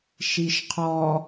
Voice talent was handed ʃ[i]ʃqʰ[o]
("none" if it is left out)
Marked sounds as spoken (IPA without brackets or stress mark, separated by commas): i, ɔ